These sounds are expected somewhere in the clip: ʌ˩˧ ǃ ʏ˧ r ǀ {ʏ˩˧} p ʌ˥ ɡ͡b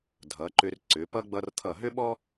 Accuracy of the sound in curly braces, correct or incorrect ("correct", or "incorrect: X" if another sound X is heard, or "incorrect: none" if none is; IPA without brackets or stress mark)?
correct